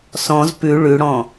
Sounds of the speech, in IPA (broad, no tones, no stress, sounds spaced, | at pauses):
s ɔ̃ z p ʉ ɭ ʉ ɽ ɔ̃